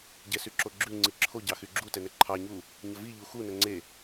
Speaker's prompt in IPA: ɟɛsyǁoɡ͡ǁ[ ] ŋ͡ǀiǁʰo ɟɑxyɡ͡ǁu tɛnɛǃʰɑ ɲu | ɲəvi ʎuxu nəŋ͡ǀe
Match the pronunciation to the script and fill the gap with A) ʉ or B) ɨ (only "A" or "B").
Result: A